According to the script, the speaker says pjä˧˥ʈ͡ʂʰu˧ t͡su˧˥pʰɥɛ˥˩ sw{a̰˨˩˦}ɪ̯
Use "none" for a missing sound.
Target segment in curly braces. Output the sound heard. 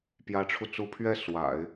a̰˨˩˦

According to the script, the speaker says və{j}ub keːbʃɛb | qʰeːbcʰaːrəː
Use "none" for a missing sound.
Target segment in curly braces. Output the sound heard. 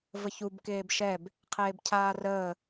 ç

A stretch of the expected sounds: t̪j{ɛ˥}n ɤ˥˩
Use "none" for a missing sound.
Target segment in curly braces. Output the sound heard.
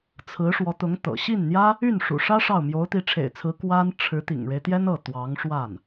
ɛ˥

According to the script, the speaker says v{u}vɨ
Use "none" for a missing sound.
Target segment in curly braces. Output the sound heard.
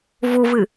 u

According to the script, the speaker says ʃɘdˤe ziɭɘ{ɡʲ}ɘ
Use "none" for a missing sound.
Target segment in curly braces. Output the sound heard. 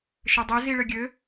ɡʲ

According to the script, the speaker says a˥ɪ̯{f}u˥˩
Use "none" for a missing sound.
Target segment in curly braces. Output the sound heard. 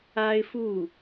f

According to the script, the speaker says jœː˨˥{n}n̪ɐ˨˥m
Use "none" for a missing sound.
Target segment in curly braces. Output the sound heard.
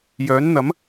n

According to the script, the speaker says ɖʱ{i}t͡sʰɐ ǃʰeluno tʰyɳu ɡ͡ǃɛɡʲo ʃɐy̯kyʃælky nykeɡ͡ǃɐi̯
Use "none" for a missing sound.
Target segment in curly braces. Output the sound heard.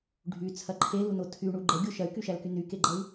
y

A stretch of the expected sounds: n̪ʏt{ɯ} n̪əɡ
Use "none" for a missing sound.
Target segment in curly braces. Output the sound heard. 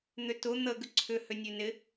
ʊ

